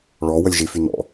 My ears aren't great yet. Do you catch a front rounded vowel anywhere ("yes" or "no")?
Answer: yes